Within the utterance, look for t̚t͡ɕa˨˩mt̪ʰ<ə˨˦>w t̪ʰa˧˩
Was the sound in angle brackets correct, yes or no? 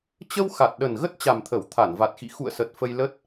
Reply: no